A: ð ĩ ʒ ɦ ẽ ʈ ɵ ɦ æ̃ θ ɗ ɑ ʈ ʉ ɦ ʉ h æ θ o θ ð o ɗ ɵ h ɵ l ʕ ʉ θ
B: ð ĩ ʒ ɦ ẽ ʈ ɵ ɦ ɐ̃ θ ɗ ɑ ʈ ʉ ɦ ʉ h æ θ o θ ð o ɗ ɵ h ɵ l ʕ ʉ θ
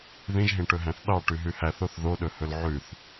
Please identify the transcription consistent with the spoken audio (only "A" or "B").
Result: A